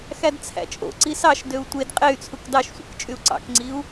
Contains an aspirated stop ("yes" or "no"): yes